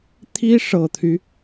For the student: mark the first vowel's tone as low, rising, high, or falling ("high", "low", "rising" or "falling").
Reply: high